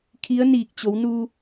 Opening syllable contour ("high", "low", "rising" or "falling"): rising